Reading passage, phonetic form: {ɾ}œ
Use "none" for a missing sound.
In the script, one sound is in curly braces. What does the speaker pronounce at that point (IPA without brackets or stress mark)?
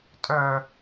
tʼ